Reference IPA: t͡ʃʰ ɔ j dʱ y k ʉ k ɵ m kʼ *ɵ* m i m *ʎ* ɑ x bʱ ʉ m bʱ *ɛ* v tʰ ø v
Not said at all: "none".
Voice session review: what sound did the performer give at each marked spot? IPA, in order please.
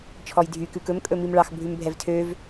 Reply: ɵ, ɭ, ɛ

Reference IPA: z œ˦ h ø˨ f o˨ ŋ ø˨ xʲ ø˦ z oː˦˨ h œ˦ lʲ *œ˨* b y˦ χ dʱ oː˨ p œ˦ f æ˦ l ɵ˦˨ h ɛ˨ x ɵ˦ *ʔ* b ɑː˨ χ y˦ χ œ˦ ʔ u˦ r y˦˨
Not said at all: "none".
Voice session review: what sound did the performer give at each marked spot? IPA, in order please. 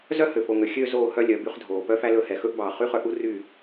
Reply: œ˨, ʔ

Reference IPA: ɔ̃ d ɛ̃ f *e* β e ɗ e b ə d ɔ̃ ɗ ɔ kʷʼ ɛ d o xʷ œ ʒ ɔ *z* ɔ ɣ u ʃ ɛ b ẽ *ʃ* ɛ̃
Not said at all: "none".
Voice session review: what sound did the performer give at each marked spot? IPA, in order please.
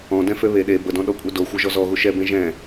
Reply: ø, z, ʒ

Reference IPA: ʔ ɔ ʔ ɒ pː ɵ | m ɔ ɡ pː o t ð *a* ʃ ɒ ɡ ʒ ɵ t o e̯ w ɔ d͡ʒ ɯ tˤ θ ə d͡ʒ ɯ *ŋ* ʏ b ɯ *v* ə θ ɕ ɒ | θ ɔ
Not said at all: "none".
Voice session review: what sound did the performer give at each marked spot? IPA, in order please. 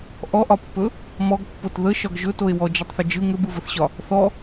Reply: ə, ŋ, v

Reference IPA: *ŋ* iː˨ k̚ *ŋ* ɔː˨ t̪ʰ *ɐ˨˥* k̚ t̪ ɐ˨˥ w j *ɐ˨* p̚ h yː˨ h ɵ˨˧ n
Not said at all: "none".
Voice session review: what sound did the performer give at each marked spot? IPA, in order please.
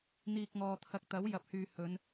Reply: n̪, ŋ, ɐ˧, ɐ˨

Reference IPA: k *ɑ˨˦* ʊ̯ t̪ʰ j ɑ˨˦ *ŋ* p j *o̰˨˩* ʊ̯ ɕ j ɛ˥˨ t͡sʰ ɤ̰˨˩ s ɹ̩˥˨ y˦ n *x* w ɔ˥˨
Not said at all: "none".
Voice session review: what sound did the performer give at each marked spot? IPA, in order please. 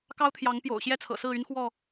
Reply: ɑ˦, ŋ, o̰˨˩, x

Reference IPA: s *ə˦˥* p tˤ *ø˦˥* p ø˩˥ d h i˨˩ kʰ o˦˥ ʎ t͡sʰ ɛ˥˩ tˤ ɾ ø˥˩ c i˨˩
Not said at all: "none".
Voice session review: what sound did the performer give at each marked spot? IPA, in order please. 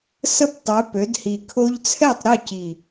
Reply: ə˥˩, ø˩˥

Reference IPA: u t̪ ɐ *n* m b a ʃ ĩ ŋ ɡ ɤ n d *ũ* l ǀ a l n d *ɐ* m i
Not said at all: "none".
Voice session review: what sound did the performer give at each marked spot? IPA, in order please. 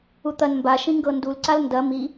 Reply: n, u, ɐ

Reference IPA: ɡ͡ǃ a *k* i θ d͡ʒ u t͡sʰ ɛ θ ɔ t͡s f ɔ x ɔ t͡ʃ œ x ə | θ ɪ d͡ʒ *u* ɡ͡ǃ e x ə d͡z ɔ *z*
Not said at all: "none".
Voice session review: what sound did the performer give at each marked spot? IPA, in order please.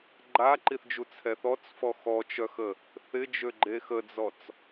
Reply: ǃ, ø, t͡s

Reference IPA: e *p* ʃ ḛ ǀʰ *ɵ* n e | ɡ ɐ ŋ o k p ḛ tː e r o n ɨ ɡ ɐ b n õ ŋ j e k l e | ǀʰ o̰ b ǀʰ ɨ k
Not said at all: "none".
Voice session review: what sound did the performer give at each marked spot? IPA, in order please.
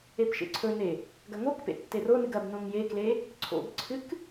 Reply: p, ɵ

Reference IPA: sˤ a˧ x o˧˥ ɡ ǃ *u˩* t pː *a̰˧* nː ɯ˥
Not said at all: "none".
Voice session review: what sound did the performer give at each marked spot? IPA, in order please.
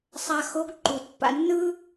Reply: u˩, a̰˧

